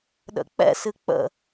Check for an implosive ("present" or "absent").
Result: present